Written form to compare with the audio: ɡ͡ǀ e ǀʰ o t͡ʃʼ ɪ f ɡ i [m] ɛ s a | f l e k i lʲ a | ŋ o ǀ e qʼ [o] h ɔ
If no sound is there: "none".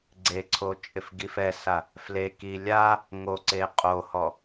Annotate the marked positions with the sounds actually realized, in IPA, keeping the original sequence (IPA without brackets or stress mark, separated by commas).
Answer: f, o